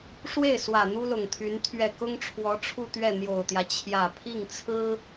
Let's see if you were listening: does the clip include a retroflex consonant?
yes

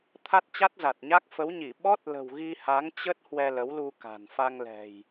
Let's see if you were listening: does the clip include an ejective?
no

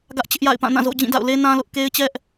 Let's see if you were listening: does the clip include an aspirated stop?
no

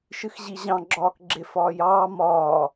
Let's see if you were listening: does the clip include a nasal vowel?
yes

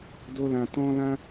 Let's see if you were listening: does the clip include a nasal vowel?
yes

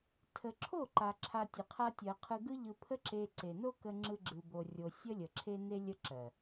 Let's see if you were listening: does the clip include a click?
yes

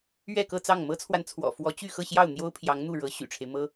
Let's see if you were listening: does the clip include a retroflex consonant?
yes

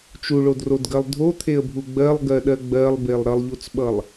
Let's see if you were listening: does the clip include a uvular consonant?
no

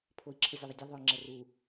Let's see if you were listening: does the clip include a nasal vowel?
no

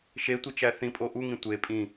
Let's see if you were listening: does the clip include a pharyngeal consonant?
no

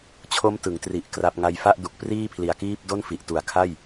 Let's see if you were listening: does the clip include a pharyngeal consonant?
no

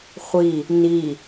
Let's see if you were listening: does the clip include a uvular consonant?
yes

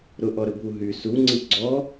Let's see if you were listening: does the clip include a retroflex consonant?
no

